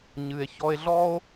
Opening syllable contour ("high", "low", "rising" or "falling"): low